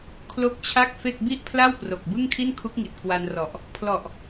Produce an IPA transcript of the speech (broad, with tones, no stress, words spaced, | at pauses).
kʰlo˦˥k̚ t͡ɕʰa˥˩k̚fe˥˩k̚ bi˥˩ʔpʰla˥˩w pro˨˩k̚bɯ˥˩ŋkʰi˥˩n kʰu˦˥k̚ŋi˨˩t̚ kwa˧nrɔ˨˩ʔ | pʰlɔ˨˩ʔ